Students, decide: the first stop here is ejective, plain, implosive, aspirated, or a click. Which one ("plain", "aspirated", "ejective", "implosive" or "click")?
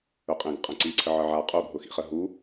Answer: ejective